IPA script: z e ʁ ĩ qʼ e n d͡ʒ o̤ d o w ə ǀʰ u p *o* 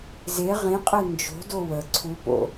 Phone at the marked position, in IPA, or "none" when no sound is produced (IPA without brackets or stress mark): o̰